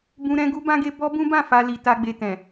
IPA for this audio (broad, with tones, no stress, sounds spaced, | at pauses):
b ũ˦ ɾ ɛ̃˦ ɡ u˦ b ã˦ ɡ e˦ b ɔ˦ b ũ˦ b ã˦˨ f a˧ l i˨ t a˧ ɡ͡b e˨ t ɛ̃˨